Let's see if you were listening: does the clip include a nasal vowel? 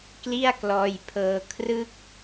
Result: no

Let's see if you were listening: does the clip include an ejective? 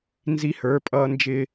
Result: yes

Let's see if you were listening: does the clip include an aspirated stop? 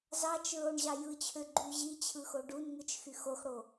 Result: yes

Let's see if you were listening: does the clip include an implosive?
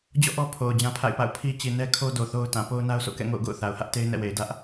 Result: no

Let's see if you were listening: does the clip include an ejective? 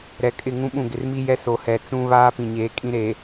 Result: yes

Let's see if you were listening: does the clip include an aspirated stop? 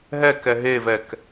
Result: no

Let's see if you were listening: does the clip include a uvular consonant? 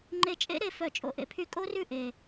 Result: no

